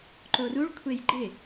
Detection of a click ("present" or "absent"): present